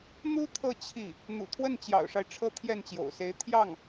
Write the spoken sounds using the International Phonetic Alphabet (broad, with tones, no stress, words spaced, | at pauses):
n̪u˥ t̪ʰɤ˥˧ t͡ɕʰi˥˩ | n̪ṵ˨˩t̪ʰwə˥˩nt͡ɕjɑ̰˨˩ʊ̯ʂa˦ɪ̯ ʈ͡ʂʰɤ˥t̪ʰjɛ˥˩nt͡ɕjo̰˨˩ʊ̯se˧˥ɪ̯ t̪ʰjɑ˥˩ŋ